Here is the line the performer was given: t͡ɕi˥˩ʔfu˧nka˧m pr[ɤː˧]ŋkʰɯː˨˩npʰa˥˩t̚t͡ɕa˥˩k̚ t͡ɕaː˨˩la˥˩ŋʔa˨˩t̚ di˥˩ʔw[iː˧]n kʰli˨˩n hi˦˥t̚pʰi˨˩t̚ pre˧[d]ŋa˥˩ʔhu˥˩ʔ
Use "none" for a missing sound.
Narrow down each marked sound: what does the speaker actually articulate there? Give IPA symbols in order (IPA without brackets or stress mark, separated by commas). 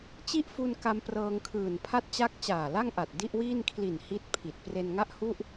ɤː˧, iː˥˩, n